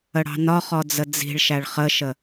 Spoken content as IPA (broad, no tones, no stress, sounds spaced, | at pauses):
ə ɽ ɑ̤ n ɒ χ ɔ d͡z ə d͡z i̤ ɭ ʃ æ ɭ χ ə ʃ ə